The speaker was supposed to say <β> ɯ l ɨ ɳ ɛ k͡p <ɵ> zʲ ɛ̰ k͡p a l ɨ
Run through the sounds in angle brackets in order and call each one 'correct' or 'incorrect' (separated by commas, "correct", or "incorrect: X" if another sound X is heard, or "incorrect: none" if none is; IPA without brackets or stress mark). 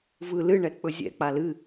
incorrect: v, correct